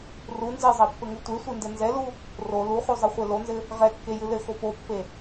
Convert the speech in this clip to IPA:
ru nzɨzˤɛpːɘŋu tʷesʷendɘ nzɛlu | ro luχuzˤɨχʷe lonzɘ | ʁɛkːejɨ lɘxo popːe

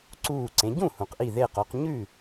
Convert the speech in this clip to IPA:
ǀuː˧˩ǀẽ˩˧ ɟũ˥˩ hũ˩qʔi˧˩ ðe˧˩qo˩˧q ɲʉ˥˩

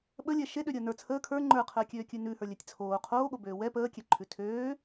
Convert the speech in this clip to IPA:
ɓəlʲɛ ʃeɗøɾʲəː nə˞ t͡sʰəː kʰə˞ ŋ͡ǃə˞qʰəːkʲøːkʲʉ nʉhə˞lʲɛtʲ t͡sʰoː qʰoːɠobøː wɛ pəːkʲɛǃʰʉ tʰøː

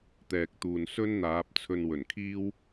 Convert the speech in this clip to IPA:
t̪ɛː˨k̚t̪uː˨n sɵ˥n n̪aː˨˥p̚t͡sʰɵ˧n wɵ˨˩nkʰiː˥w

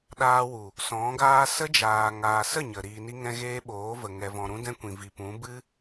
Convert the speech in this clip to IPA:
ɗaː˧wu˨ | sɔ̃˨˦ɡaː˦ sə˦d͡ʒaː˨ ŋaː˨sə˦˨ ɲə˨ ɾiː˨ni˧ŋɛ̃˧ ɣeː˦ɓoː˨˦və˨ ŋɛ˨vɔ̃˨ɾũ˧dɛ̃˧ kʷĩ˨vi˨pũ˨˦ bɨ˦

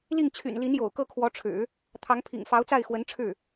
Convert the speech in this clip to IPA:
li˥˩ŋt͡ɕʰy̰˨˩nli˧˥n jo̰˨˩ʊ̯kɤ˥˩kʰwɔ˧˥ʈ͡ʂʰɻ̩˨˩˦ | t̪ʰɑ˧˥ŋpʰḭ˨˩ŋ fɑ˧˥ʊ̯t͡sa˥˩ɪ̯ xwə˧˥nʈ͡ʂʰɻ̩˥˩

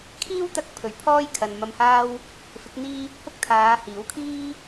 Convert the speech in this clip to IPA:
kʰiː˥w t̪ɐ˧k̚ pʰɵ˨˩ɥ pʰɔː˥j kʰɐ˨nmɐ˧mhaː˥w | fɪ˨˥k̚n̪iː˥ | hʊ˥k̚t̪ʰaː˨˧hiː˨˥w kʰiː˥

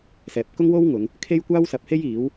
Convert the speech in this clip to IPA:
sɛː˨p̚kʊ˥ŋwo˥wŋʊ˨˧ŋ | kʰe˥jkʷaː˥wsɐ˨˥p̚he˥j iː˨˥w

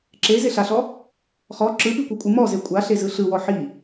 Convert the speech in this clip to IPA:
ǁezeɬaɬɔ | χɔ ǁɯpikʷekʷʼɯ mɔze kʷʼaɬezɯ ɬɯwɔ ħi

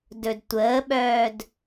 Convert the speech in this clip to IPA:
dɵdtʷəːɓœːd

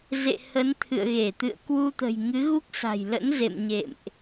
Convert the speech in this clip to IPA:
zḛ˧˨ hə˨˦nt̪ʰɨ̰˧˨ə̯ ɣe˧˩t̪ɨ̰˧˨ə̯ kwu˧t̪ə̤˨˩j ŋɨ˨˦ɣu˦˥k̚sa̤˨˩j lə̰˧˥nzḛ˧˨m ɲḛ˧˨mʔ

